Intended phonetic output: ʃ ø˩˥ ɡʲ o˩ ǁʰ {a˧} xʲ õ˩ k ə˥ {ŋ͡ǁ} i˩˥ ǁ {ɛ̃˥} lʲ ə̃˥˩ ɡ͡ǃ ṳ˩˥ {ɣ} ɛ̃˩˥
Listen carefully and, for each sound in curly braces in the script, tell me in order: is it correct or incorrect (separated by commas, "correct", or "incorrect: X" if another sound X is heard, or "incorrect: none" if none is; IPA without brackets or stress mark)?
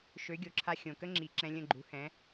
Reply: correct, correct, incorrect: ɛ̃˧, incorrect: h